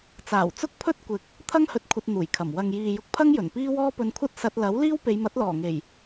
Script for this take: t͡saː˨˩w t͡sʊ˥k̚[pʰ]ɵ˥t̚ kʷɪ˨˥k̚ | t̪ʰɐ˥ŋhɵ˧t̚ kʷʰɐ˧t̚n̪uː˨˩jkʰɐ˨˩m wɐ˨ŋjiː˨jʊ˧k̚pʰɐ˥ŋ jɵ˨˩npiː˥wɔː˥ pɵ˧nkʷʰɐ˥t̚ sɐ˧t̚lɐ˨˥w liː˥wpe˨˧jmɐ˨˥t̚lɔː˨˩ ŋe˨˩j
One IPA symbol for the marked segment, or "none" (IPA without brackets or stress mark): pʰ